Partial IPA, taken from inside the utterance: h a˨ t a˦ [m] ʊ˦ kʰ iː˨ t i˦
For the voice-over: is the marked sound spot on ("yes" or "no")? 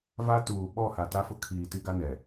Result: no